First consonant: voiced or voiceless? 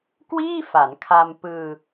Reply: voiceless